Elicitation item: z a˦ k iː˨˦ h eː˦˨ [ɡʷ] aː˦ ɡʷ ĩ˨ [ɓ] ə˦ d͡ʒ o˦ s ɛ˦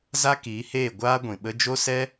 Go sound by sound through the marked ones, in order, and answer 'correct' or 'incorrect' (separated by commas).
correct, correct